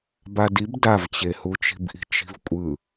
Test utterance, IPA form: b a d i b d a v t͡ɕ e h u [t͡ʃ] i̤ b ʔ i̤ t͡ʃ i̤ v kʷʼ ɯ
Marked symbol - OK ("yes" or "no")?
yes